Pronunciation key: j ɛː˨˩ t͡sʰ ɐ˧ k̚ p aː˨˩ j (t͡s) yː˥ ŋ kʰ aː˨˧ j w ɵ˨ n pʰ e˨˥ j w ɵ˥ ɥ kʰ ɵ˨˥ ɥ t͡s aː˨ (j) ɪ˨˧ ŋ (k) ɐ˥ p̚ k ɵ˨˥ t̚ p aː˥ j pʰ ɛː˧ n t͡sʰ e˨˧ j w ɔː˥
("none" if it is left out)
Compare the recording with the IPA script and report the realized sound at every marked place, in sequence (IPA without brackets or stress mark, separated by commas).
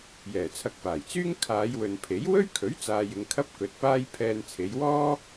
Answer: t͡s, j, kʰ